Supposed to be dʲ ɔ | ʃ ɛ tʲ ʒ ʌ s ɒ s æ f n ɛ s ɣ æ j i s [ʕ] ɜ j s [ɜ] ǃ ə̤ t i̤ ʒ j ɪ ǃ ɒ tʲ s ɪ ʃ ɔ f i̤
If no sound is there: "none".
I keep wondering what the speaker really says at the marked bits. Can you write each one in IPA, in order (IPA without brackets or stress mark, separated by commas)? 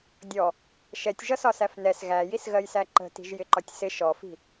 ɣ, æ